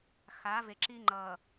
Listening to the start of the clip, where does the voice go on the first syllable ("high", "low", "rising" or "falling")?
rising